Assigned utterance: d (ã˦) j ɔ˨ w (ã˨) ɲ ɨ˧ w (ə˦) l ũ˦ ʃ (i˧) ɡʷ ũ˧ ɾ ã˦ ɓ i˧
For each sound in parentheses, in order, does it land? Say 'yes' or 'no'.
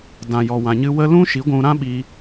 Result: no, yes, yes, no

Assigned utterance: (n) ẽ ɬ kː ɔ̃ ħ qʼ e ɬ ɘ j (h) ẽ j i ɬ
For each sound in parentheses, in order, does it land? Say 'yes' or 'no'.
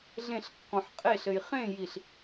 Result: no, no

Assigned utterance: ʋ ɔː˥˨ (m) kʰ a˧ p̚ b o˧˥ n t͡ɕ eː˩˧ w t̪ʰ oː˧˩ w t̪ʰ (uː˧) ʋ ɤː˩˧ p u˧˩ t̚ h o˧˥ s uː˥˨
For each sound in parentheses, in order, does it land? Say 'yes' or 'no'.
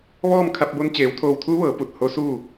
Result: yes, no

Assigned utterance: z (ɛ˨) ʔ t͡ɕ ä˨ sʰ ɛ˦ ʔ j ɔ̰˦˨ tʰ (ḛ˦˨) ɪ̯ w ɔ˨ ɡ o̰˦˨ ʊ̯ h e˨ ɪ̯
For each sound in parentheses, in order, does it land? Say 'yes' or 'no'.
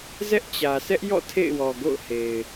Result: no, yes

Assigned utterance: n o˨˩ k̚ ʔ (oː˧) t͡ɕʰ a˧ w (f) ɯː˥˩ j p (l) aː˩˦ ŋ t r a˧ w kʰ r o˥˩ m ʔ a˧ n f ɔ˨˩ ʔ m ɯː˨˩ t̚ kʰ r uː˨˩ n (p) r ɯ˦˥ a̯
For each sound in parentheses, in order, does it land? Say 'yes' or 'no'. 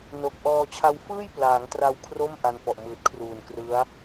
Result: no, yes, yes, no

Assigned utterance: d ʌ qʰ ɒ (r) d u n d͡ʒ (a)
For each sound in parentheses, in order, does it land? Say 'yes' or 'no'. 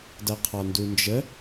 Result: no, no

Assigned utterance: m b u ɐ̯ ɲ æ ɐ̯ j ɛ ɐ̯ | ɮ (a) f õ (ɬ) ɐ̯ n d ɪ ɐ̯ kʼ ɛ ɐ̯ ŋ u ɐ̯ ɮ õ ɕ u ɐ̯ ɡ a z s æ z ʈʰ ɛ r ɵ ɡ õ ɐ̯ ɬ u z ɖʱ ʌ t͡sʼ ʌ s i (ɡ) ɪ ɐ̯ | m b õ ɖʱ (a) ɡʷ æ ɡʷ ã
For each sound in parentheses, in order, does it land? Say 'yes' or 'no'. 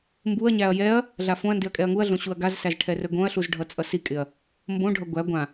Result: yes, no, no, no

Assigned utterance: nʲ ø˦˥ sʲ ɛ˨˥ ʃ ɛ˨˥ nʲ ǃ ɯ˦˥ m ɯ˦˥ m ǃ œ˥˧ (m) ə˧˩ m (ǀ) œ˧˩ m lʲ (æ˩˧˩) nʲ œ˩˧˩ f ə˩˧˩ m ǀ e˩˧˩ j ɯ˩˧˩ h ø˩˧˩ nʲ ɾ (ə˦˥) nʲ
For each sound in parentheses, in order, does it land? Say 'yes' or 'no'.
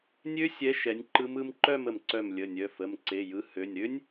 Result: yes, yes, no, no

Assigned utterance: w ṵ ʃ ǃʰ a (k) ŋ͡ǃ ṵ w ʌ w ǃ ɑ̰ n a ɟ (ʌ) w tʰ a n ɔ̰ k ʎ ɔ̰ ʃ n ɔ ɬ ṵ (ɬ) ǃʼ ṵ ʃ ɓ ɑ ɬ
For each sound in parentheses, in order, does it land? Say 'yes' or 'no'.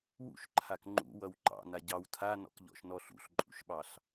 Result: yes, no, yes

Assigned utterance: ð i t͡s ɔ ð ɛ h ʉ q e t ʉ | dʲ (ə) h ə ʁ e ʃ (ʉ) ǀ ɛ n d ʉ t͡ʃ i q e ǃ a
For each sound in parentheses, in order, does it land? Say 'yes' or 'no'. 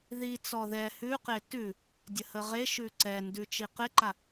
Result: yes, yes

